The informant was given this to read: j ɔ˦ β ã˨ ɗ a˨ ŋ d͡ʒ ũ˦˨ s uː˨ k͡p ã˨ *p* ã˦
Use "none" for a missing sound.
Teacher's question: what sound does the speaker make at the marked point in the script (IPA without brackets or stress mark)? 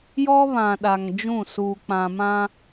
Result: m